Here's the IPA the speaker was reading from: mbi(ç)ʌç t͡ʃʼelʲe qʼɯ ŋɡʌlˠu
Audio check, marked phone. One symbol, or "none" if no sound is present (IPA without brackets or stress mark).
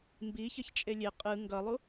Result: ç